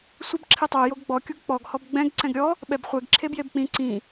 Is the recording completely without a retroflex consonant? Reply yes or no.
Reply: yes